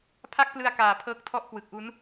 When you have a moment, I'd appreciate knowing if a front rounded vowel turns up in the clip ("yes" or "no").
no